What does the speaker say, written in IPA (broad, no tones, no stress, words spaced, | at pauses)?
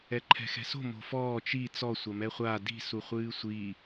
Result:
ɛǃʰɛ̤xɛ̤so̤ mo̤fɔː t͡ʃi t͡sɔ sʷɐmɛχʷa di̤ suχʷɨːsʷi